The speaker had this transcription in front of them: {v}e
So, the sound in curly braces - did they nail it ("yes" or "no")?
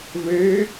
yes